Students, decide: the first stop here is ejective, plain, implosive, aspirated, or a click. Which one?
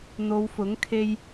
aspirated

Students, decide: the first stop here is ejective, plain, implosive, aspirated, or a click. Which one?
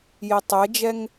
plain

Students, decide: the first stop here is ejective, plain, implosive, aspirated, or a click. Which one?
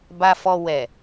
plain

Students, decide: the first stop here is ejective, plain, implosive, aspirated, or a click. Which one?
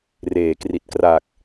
plain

